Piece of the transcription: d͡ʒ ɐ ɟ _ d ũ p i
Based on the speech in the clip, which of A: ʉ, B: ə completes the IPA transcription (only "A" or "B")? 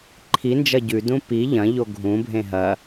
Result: A